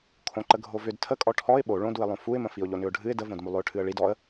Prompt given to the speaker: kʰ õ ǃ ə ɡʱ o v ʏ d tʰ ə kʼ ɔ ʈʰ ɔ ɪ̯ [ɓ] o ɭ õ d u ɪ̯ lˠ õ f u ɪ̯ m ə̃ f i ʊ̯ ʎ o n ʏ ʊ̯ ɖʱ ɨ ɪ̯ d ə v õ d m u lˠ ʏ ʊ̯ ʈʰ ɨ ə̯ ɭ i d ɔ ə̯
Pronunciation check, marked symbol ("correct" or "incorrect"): correct